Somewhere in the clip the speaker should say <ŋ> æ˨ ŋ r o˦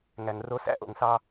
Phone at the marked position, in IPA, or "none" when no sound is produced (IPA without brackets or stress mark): ŋ